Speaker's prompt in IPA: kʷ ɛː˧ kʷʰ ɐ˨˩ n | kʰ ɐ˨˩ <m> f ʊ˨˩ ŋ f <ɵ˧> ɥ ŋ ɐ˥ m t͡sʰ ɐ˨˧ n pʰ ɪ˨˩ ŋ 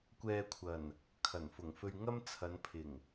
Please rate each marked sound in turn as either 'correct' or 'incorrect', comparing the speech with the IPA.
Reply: incorrect: n, correct

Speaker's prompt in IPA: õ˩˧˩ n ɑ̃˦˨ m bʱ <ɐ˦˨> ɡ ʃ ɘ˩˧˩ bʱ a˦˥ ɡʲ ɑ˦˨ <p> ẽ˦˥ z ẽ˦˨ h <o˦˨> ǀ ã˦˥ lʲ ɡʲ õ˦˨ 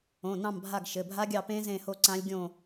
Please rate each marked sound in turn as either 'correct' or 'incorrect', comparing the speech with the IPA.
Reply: incorrect: a˦˨, correct, correct

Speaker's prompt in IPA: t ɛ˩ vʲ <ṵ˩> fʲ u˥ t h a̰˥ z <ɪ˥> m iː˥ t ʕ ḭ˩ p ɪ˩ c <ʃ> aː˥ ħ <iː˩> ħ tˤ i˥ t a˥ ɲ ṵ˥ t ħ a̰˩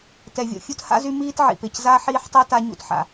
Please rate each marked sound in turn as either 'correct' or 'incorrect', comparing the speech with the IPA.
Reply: incorrect: o̰˩, incorrect: y˥, incorrect: z, incorrect: iː˥

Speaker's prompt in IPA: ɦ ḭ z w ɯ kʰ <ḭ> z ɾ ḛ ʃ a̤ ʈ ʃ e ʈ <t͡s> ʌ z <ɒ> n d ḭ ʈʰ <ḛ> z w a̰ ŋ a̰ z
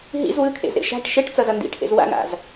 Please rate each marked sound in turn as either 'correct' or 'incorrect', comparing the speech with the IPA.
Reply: incorrect: ḛ, correct, incorrect: ʌ, correct

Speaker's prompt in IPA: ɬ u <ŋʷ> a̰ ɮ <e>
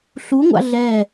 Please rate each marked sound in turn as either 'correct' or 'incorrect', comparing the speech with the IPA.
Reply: correct, incorrect: ɛ

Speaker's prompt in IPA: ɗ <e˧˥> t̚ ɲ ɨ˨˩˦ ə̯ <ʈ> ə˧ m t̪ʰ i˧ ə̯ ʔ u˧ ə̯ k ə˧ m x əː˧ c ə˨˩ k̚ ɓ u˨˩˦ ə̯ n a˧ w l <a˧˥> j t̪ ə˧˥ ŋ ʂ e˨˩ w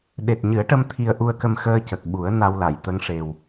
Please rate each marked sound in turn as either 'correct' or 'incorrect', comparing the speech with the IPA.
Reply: incorrect: e˨˩, correct, incorrect: a˨˩˨

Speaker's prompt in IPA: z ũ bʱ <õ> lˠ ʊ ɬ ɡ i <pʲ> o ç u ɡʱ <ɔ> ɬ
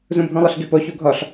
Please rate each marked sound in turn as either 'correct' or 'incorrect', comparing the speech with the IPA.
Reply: incorrect: ũ, incorrect: p, correct

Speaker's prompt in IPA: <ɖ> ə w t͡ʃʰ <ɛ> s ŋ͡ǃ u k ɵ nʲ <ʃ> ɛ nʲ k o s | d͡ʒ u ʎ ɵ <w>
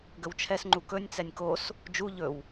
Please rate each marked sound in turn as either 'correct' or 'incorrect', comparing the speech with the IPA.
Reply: incorrect: ɡ, correct, incorrect: t͡s, correct

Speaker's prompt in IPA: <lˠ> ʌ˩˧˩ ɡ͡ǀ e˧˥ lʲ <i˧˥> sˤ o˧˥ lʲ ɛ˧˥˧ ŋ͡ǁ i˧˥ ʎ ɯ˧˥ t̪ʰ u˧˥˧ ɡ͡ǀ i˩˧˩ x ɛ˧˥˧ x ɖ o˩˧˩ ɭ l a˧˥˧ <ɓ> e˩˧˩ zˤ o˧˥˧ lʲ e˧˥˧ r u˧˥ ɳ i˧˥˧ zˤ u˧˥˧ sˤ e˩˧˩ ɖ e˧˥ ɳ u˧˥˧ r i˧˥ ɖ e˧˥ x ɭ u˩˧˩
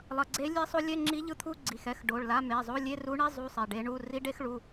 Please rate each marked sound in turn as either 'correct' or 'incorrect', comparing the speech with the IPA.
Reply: correct, incorrect: e˧˥, incorrect: m

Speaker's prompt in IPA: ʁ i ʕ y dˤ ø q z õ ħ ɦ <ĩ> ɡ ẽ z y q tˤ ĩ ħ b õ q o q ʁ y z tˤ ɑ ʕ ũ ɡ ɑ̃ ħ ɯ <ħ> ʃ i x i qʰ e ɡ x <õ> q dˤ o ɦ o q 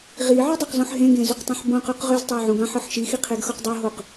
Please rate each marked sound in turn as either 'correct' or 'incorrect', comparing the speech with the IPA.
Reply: incorrect: ẽ, correct, incorrect: o

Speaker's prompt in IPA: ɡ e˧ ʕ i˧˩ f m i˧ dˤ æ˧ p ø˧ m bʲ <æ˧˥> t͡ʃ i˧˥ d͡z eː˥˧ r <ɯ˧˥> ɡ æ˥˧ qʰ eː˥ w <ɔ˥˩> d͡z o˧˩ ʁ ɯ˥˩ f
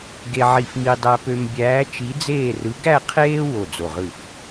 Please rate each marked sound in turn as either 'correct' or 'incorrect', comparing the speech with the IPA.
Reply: incorrect: æː˧˥, correct, incorrect: o˥˩

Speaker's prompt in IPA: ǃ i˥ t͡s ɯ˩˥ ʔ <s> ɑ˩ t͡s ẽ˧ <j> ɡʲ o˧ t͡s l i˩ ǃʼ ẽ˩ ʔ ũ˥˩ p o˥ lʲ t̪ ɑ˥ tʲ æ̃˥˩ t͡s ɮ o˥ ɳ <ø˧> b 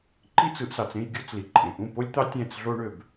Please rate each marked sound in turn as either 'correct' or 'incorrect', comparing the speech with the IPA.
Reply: correct, correct, correct

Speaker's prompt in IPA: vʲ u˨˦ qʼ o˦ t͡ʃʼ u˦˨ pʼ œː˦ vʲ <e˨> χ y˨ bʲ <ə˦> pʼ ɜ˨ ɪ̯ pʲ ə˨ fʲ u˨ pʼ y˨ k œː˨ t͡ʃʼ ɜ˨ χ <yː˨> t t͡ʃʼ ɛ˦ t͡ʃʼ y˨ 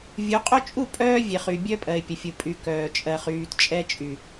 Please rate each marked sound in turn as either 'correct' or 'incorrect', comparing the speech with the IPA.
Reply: correct, incorrect: œ˦, correct

